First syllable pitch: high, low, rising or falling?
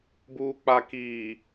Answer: low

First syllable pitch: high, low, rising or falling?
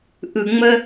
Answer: low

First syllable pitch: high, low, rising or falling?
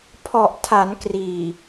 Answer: low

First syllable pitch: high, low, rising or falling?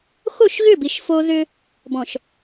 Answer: falling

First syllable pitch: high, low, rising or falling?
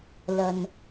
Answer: low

